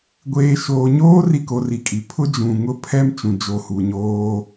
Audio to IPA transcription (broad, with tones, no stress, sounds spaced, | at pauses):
ɡʷ eː˨ ʃ oː˨ ɲ oː˦ r i˦ k o˨ r i˨ kʼ i˨ pʰ ʊ˦ d͡ʒ ũ˨ ŋ ʊ˦˨ pʰ ɛ˦ m t͡ʃ ũ˨ d͡ʒ o˨ h u˨ ɲ oː˦